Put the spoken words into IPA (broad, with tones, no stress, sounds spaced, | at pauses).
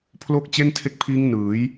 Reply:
pʰ l o˦˥ k̚ t͡ɕ e˥˩ n tʰ e˦˥ k̚ pʰ iː˦˥ ŋ n ɯː˩˦ j